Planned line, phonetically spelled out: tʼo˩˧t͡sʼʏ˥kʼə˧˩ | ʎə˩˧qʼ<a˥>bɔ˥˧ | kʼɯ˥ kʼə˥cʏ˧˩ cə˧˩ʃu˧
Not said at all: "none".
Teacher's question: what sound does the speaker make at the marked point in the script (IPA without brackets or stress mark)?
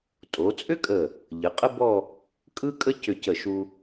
ə˥